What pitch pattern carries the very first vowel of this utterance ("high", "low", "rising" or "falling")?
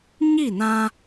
falling